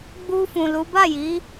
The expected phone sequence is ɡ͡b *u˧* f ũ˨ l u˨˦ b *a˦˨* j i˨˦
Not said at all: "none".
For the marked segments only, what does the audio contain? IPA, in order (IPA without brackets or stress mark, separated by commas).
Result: u˧, a˦˨